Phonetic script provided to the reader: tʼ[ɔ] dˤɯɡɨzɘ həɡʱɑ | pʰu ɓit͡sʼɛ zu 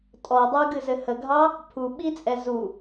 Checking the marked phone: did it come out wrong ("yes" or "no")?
no